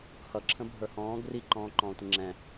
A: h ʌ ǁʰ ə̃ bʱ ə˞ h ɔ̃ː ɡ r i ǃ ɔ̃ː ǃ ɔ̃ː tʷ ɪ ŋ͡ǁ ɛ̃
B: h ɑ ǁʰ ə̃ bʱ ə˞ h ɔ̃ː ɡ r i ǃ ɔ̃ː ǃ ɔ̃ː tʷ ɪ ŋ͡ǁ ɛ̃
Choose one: A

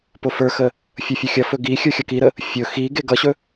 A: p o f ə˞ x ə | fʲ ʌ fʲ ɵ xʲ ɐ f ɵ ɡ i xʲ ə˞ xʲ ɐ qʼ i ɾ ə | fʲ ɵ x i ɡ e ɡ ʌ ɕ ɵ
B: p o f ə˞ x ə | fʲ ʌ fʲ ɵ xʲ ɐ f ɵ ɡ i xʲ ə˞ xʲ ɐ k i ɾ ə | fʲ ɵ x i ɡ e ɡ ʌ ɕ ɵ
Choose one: B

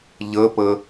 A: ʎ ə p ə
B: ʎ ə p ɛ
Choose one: A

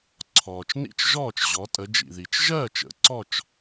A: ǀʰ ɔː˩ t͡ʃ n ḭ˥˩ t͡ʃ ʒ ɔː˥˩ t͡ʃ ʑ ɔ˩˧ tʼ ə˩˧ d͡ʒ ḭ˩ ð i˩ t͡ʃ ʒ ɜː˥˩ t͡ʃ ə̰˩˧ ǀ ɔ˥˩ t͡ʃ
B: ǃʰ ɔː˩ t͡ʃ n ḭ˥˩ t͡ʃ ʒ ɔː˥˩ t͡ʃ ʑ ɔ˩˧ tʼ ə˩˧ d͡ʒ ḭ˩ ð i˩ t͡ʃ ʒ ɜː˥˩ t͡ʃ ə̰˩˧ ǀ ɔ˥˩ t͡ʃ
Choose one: A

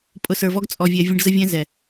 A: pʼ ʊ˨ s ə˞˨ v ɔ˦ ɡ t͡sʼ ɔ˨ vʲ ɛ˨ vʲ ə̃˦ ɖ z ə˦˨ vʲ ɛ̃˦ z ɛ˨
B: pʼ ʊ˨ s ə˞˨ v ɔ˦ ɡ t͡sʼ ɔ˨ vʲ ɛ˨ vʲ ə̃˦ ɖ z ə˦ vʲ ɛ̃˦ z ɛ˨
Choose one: B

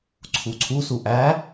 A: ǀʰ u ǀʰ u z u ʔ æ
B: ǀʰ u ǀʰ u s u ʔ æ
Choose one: B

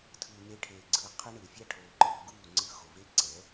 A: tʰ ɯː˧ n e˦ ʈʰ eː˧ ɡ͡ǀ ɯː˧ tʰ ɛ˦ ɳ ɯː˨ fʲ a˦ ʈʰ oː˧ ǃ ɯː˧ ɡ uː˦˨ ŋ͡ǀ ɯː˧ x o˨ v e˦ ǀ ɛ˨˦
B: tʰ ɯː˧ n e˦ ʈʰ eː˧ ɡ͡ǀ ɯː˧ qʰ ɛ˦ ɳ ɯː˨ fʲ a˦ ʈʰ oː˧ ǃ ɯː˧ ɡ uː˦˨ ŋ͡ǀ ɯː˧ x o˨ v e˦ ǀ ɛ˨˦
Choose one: B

